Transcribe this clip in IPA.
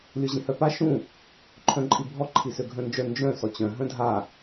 lʲ o ʑ ĩ h œ p a ʃ ũ | ǃʰ œ̃ ǃʼ i bʱ ɔ ǃʰ i s ø ɡʱ œ̃ n d͡ʒ œ n d͡ʒ œ̃ s ɔ t͡ɕ œ̃ ɦ œ̃ dʱ a

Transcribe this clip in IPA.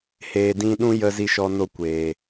h eː˨ d ĩ˧ ɗ ũ˦ j ə˧ z i˧ ʃ ɔ˧ n o˧ kʷ eː˨

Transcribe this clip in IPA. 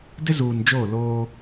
d ɪ˦ z uː˨ n d͡ʒ oː˦˨ l oː˦

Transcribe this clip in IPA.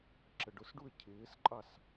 ǁ ə ɖ ʊ s ɖ u ə̯ cʰ ɪː s ǃʼ ɑ s

